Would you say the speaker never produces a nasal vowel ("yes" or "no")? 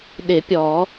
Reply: yes